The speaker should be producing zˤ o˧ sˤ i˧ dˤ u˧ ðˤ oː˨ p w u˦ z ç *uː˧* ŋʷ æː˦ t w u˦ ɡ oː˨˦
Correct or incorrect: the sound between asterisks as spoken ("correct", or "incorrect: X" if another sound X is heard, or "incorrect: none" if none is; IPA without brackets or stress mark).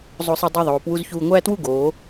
correct